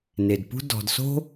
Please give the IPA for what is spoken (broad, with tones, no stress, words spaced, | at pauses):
ne˩dpṳ˦ dɔ̤˩dso̤˦